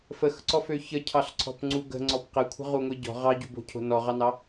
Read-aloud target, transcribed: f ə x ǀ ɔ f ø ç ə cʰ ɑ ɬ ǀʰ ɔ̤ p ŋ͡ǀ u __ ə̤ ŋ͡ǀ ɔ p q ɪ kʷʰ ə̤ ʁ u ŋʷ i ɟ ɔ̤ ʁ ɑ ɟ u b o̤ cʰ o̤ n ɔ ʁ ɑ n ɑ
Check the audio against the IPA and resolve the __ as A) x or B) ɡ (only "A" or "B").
B